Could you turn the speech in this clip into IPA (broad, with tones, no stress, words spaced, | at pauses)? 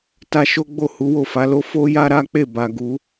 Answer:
ta˧ ʃo˦ɡ͡bo˦˨ hu˨˦wo˦˨fa˨˦lo˦ fo˦ja˦ ɾa˦k͡pe˦˨ba˨ ɡu˨˦